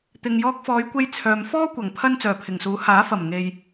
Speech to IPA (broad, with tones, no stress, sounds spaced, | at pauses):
t̪ ɪ˨ ŋ j ɔː˧ k̚ f ɔː˨˧ j kʷ e˧ j t͡sʰ œː˨ m f ɔː˥ kʷ ɐ˨˩ ŋ pʰ ɐ˥ n t͡s œː˨˩ pʰ ɪ˨˩ ŋ s uː˨˥ h aː˨˥ f ɐ˨˩ m ŋ e˨ j